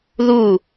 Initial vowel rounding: rounded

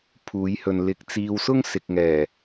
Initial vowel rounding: rounded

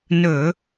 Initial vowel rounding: rounded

